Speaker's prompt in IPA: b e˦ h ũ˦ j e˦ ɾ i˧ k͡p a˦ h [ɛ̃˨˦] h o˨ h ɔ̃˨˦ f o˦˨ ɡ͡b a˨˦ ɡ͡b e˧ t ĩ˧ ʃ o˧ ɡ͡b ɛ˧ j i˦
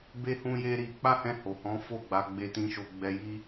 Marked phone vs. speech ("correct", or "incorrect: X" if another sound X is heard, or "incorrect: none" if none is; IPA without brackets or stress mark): incorrect: ɛ̃˧